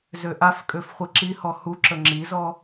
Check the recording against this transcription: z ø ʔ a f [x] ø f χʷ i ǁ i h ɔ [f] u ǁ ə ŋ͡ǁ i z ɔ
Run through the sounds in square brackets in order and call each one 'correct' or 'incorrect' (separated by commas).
incorrect, incorrect